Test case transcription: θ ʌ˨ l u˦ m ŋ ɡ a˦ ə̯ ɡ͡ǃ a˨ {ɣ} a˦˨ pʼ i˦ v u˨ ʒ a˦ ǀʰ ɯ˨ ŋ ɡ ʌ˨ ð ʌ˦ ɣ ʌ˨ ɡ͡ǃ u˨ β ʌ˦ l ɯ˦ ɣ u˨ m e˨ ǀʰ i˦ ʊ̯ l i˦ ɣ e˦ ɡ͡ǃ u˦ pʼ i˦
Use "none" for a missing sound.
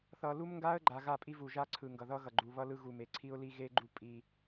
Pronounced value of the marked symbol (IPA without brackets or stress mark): ɣ